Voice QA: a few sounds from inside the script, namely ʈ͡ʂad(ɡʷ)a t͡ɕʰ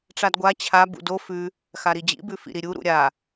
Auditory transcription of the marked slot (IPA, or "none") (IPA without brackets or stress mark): ɡʷ